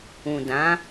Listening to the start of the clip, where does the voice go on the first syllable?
low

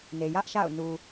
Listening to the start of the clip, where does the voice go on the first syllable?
low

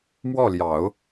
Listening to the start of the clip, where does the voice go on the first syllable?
falling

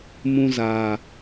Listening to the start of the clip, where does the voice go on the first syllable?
high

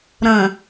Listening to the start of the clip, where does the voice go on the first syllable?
low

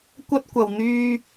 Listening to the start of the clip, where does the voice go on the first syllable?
high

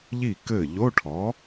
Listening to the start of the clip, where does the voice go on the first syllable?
falling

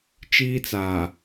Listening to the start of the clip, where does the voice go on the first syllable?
high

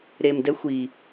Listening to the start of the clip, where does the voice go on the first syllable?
low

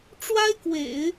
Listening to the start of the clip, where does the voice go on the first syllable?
high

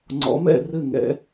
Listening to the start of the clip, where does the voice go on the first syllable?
rising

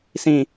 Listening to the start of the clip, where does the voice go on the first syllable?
low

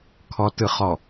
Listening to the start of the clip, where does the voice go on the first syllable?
low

